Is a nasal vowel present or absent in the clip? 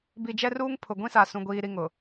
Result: present